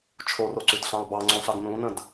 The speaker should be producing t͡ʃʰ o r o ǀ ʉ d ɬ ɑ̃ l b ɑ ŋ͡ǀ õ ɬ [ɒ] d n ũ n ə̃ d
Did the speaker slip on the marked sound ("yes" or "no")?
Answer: yes